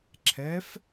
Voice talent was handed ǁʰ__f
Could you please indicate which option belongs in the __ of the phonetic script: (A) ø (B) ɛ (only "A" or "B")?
B